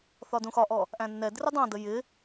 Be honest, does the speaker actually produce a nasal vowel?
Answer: yes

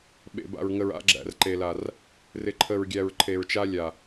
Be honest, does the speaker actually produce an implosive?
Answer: yes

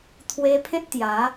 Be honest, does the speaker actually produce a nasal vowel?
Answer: yes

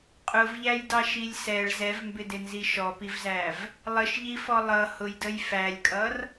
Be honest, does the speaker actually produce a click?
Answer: no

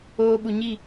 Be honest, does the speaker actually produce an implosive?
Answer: yes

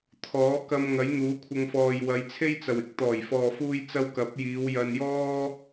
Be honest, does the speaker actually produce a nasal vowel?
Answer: no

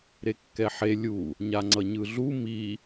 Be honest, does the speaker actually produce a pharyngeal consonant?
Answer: yes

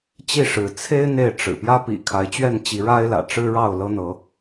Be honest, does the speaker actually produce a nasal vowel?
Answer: no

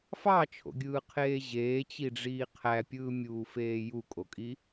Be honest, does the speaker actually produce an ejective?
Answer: yes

